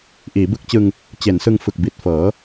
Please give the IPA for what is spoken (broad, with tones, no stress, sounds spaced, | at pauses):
ʔ iː˩˦ b ɯ˥˩ k̚ t͡ɕ ɯ˧ ŋ | t͡ɕ e˩˦ n s ɯ˧ ŋ f ɯ˨˩ k̚ b i˨˩ t̚ f ɤː˩˦